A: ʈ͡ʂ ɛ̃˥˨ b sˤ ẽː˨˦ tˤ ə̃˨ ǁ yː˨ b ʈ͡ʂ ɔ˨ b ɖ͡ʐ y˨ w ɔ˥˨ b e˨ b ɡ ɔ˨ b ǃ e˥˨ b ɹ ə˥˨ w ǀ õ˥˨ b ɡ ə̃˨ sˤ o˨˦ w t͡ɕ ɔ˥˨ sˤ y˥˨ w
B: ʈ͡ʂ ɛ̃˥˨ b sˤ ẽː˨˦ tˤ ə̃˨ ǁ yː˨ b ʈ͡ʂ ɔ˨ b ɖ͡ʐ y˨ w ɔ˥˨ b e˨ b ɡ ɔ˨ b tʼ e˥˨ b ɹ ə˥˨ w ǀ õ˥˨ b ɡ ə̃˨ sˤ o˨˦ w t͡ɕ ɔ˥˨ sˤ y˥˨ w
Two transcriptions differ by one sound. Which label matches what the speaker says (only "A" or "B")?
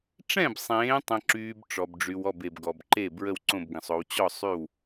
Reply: A